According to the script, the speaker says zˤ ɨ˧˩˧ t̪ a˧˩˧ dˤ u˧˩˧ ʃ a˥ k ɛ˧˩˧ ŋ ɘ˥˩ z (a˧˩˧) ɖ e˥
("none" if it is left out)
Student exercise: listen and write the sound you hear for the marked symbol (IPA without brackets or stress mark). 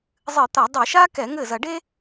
ɐ˧˩˧